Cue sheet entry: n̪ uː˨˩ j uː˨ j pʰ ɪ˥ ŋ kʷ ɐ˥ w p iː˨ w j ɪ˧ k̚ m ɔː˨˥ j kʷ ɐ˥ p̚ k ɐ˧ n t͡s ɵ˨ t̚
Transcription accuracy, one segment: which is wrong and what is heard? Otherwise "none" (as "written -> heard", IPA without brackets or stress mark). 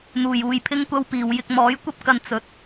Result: none